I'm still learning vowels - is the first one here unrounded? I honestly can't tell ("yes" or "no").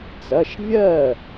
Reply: yes